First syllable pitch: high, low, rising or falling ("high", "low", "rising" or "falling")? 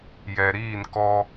low